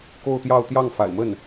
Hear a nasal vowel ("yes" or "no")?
no